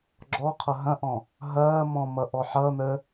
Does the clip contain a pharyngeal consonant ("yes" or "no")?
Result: yes